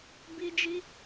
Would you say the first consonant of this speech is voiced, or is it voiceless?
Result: voiced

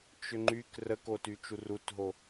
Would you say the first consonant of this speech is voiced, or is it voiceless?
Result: voiceless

